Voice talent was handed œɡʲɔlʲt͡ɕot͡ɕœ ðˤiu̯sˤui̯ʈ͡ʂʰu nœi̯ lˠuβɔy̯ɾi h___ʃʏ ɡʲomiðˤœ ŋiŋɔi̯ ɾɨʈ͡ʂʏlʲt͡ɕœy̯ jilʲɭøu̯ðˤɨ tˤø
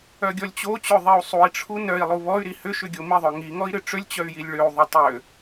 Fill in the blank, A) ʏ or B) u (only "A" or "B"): A